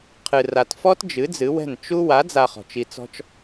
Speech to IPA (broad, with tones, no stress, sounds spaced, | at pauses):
qʰ ɨ˨ r a˨ t f ɔ˦ t d͡ʒ ɨ˨˦ d͡z ɨ˨˦ w ɛ̤˦˨ n t͡ʃ u˦ w a˨˦ d͡z a˨ χ ɔ̤˨ t͡ʃ i˧ t͡s ɔ̤˦ t͡ʃ